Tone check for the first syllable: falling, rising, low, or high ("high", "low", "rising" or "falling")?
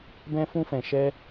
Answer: high